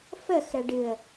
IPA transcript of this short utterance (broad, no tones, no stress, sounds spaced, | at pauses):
f ə x ɾ ə ɖ ɨ ə̯